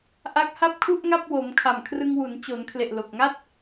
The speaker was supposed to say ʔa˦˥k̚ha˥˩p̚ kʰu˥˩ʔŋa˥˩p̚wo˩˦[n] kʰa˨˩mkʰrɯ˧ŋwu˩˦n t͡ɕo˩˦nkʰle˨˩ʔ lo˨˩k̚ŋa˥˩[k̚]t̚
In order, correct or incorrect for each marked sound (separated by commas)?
incorrect, incorrect